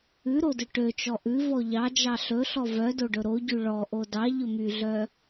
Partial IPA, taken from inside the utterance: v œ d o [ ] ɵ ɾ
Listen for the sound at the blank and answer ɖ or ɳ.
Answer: ɖ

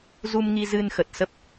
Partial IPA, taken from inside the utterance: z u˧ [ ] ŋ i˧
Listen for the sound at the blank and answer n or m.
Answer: m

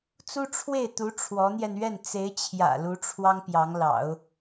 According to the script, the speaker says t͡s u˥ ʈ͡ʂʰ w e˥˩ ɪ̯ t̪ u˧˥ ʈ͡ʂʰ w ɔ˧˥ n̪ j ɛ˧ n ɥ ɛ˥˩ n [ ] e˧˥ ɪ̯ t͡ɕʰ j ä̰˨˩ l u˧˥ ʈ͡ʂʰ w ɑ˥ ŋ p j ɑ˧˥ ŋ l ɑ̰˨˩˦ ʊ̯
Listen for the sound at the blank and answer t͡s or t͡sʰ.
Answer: t͡s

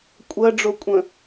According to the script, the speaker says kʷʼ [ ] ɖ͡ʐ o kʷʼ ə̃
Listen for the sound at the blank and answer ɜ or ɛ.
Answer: ɜ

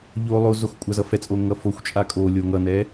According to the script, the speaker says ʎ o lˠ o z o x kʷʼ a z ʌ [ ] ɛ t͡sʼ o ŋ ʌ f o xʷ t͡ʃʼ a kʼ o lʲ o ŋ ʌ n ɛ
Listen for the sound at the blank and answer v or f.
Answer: f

